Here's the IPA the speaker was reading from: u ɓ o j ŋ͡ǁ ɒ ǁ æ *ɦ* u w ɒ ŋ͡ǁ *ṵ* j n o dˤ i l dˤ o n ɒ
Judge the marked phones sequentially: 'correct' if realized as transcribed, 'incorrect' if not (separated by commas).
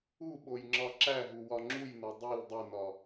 correct, incorrect